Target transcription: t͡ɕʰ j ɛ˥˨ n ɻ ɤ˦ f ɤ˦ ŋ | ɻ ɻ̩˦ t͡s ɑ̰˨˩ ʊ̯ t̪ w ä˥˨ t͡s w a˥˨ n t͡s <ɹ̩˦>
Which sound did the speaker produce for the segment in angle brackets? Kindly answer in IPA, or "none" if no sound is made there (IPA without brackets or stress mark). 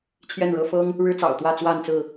ɹ̩˥˨